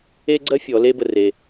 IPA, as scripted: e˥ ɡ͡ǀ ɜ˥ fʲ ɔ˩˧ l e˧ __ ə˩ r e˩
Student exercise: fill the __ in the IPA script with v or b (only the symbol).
b